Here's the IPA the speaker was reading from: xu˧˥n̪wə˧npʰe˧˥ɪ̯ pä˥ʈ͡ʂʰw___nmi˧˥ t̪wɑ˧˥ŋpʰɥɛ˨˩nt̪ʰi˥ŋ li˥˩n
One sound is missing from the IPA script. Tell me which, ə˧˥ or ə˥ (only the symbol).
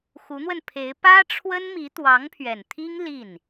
ə˥